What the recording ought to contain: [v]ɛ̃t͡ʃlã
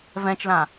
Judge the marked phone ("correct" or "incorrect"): correct